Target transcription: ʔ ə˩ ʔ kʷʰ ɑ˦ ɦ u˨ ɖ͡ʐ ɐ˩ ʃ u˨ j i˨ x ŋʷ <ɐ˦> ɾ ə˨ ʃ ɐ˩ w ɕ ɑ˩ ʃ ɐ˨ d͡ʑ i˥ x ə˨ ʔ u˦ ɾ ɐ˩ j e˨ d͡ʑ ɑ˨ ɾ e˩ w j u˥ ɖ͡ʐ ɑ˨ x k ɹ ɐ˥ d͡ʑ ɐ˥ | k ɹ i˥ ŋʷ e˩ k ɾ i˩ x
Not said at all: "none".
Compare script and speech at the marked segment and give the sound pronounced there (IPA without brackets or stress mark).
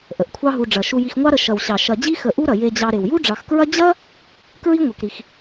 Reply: ɑ˦